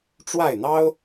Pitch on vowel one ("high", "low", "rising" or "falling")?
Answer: falling